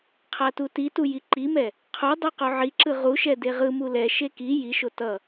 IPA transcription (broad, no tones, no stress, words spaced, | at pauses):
qʰatutitu jiǃimɛ | qʰodˤɛ qoʕiǁɯ ʁuʃɛ deʁɯmu lɛʃe ki jiʃo tʌ